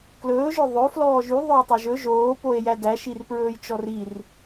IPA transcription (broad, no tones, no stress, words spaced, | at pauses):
klɵːʒœ ðˤɵ flɔːʒy ðˤœo̯tˤoʒɵ ʒoːpoe̯ jædæʃir pɹɵːjt͡ʃɔrir